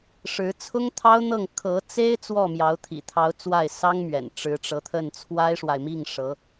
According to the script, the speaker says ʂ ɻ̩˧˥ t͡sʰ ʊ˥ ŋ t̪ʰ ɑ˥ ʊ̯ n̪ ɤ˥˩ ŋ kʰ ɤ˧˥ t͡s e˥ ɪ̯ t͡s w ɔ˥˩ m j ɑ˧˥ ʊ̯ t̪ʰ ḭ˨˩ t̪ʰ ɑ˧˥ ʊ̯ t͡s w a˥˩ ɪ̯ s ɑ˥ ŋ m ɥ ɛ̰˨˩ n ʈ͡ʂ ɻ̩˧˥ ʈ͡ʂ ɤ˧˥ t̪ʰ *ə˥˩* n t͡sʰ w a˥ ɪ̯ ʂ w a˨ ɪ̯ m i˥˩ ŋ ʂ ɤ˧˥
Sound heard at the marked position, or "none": ə˥˩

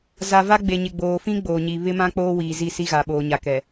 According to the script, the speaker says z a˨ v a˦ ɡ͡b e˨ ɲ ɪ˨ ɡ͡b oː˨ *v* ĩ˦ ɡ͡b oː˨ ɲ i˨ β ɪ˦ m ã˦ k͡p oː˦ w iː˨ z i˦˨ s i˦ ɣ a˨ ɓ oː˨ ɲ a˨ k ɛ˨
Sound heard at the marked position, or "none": f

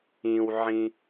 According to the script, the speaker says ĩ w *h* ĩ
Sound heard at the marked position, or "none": ʕ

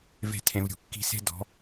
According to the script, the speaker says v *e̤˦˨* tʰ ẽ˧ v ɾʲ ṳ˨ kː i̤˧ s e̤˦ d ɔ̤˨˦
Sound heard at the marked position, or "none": e̤˦˨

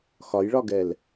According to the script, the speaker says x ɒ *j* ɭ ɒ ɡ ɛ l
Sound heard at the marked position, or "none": j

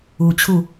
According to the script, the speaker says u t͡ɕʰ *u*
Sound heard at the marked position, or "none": u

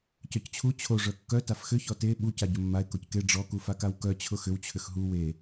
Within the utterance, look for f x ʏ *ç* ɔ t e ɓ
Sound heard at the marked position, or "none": ç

